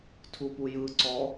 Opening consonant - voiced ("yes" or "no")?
no